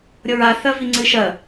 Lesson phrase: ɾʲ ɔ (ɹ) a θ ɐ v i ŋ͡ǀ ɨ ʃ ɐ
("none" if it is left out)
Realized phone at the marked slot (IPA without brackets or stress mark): ɹ